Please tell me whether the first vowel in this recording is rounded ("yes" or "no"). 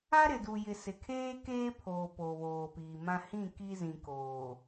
no